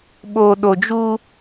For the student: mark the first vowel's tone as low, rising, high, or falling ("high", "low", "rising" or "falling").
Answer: low